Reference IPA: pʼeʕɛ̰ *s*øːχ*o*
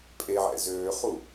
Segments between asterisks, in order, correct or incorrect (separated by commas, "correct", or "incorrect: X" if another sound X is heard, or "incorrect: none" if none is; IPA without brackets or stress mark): incorrect: z, incorrect: u